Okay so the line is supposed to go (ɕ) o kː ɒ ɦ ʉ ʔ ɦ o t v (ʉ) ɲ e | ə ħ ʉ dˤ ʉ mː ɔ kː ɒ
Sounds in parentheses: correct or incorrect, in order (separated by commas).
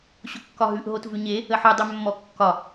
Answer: correct, correct